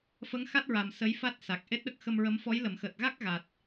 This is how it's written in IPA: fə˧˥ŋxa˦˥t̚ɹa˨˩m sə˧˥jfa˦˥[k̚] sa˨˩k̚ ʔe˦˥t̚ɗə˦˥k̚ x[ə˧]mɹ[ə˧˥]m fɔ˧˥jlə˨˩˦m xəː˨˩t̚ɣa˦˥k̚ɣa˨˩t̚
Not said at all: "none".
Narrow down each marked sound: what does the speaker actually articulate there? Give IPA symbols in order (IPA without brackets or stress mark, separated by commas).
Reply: t̚, ə˧, ə˧˥